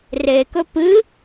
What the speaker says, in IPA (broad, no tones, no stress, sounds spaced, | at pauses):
r e k ɵ p ɨ